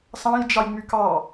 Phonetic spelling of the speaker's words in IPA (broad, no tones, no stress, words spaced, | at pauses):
sɑ̃jd͡ʒɑjŋ͡my kɑ